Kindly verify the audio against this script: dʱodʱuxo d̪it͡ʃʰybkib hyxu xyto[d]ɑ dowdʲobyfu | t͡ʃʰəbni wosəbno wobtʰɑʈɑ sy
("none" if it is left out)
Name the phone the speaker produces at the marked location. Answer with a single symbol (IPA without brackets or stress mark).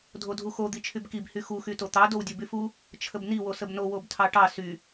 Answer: t̪